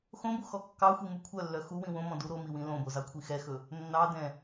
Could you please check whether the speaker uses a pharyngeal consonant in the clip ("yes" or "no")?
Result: no